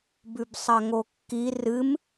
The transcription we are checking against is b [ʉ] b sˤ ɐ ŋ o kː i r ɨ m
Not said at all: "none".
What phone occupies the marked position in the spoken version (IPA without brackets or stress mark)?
ʉ